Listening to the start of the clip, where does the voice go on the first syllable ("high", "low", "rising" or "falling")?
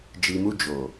low